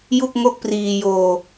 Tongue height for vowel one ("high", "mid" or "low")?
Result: high